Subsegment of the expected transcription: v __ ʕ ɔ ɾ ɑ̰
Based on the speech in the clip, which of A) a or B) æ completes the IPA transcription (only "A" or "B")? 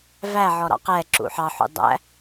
B